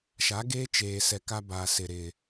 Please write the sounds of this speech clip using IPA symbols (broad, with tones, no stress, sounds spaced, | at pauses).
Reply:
ʃ a˨˦ ɡ eː˦ t͡ʃ eː˨ s ɛ˨ k a˦ b aː˨ s ɪ˨ ɾ ɪ˨